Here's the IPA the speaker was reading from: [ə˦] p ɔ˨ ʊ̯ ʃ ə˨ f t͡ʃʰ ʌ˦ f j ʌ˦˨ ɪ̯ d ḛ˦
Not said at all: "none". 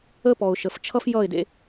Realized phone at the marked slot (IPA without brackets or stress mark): ə˦